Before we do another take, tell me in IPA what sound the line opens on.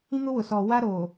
ĩ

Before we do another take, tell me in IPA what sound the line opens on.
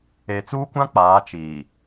e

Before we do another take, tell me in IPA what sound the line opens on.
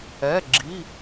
ɛ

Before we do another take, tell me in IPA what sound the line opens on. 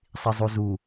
sˤ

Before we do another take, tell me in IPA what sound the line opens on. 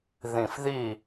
ð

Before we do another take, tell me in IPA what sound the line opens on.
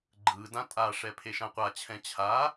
ɡ͡ǃ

